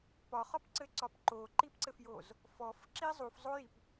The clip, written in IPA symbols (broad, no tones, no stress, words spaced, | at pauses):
pɒχɒpǀɘǀɒp ǃoǃipǀɘfjoz | fɔf ǁizˤufzˤojip